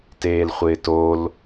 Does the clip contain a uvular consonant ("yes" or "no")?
yes